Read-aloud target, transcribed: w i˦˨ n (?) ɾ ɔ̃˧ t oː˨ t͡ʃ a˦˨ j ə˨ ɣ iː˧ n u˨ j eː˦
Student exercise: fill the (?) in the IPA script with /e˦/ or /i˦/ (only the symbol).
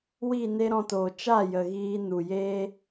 e˦